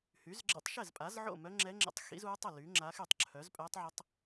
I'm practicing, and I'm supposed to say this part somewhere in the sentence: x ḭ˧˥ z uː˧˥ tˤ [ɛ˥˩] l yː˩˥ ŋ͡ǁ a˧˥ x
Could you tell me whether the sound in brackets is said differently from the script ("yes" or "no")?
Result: no